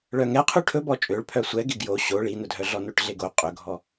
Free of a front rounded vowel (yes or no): no